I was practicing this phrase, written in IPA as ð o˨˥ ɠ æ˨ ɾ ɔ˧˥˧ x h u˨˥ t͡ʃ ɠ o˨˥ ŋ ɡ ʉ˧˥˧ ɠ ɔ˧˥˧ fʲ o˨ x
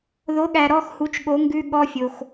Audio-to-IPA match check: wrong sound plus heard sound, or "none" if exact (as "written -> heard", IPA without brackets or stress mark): none